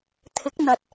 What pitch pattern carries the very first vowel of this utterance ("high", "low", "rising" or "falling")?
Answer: rising